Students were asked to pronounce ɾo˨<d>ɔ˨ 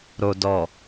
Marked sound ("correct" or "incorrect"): correct